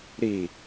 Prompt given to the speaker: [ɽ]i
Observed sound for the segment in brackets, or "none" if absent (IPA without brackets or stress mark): ɾ